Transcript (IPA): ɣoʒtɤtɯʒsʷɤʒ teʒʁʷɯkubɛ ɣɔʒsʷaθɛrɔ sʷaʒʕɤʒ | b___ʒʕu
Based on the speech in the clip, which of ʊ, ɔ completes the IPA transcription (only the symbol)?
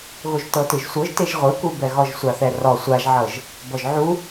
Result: ɔ